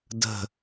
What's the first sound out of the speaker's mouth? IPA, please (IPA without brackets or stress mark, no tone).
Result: d